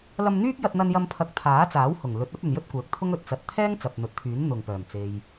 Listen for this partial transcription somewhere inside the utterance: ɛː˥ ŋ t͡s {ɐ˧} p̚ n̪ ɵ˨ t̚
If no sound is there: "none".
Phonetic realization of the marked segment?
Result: ɐ˨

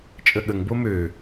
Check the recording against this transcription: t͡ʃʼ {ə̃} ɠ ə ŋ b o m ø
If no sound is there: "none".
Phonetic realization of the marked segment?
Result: ə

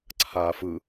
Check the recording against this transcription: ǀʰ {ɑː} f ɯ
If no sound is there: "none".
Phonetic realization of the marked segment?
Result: aː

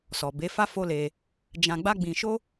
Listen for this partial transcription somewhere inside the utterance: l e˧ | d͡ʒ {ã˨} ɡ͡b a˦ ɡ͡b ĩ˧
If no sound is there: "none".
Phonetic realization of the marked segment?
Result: ã˧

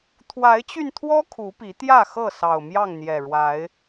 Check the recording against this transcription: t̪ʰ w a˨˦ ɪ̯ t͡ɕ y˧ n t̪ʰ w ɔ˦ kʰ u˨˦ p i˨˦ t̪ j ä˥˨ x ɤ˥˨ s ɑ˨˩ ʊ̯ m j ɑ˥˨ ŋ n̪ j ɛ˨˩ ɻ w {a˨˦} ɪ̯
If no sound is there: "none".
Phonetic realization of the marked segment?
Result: a˨˦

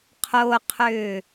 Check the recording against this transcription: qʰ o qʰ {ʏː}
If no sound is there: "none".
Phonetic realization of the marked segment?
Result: ʏː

